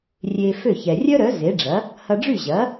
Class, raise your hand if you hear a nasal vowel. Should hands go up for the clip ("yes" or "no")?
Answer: no